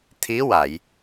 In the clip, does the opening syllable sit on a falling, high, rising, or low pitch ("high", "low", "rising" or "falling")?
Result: rising